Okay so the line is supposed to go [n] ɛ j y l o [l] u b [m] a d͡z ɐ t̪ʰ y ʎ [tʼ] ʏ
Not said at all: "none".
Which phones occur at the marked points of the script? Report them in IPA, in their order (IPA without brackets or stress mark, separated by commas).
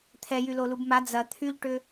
t̪ʰ, l, m, ʈ